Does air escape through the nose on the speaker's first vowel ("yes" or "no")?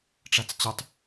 no